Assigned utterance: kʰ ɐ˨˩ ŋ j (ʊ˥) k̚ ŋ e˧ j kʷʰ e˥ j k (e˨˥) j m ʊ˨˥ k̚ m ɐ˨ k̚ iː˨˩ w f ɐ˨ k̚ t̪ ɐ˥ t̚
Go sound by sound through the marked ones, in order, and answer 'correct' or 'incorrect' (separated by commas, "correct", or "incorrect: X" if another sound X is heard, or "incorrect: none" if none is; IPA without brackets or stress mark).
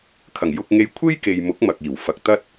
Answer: incorrect: ʊ˧, incorrect: e˨